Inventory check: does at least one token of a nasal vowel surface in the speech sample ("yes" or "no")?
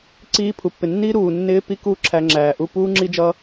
no